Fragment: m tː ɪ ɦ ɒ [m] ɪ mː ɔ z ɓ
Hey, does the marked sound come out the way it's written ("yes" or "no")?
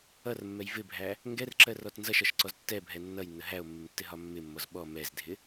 no